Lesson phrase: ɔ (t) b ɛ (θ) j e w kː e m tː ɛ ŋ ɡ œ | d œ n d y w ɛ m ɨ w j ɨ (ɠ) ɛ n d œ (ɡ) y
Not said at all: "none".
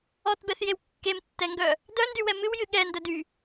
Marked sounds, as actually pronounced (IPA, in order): t, θ, ɠ, d

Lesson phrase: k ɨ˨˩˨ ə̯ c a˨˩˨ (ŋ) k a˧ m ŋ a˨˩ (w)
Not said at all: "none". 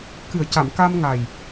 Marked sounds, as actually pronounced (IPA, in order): m, j

